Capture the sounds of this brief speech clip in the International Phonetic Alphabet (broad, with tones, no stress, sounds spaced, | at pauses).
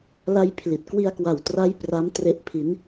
l a˧ j pʰ l i˨˩ t̚ k w i˧ a̯ k w a˨˩ w t r a˦˥ j p r a˦˥ m t r e˦˥ ʔ pʰ i˦˥ n